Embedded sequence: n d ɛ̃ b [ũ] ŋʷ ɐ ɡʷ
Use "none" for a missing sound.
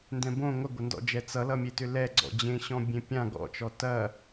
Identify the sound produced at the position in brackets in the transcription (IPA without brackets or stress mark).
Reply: õ